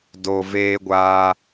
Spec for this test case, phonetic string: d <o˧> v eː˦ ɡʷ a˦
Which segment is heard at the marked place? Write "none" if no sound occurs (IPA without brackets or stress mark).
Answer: o˧